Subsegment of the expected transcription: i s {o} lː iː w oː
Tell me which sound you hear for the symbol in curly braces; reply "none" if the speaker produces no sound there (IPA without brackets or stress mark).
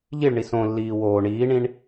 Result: õ